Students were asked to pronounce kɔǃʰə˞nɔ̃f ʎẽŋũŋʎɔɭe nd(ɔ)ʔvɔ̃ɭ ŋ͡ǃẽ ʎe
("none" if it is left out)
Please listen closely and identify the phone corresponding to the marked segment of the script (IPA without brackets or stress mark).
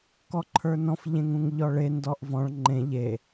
ɔ